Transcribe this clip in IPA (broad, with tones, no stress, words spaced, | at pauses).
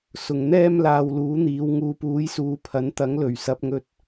sʊ˨ŋn̪ɛː˥m laː˧wluː˨˥n̪iː˨˧w ŋuː˨puː˨˥jsuː˨ pʰɐ˨˥nt̪ɐ˨˥ŋ lɵ˨˩ɥ sɐ˨˥p̚ŋɵ˧t̚